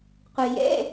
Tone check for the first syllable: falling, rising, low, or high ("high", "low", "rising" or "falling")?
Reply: low